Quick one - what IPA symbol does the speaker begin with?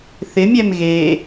θ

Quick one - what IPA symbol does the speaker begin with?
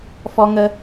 f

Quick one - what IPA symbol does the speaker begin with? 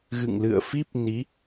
ɣ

